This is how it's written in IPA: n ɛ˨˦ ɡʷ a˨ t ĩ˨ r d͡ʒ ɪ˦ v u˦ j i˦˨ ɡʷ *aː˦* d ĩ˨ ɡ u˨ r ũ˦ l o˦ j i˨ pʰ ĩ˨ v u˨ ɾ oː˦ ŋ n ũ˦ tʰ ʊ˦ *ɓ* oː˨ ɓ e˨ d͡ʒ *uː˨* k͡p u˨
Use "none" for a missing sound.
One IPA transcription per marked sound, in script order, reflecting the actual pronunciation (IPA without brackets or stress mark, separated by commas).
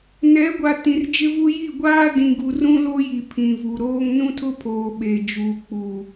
aː˦, pʰ, uː˨